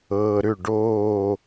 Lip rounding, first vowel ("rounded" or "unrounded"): unrounded